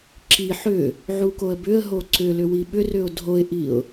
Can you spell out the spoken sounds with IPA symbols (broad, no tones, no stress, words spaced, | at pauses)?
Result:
ǁi ħʏ | ʕukoə̯bʏə̯ɦo ǀʏlʏ wiɓʏrʏʊ̯ dʱoɪ̯ʔiʊ̯